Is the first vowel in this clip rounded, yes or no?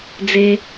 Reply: no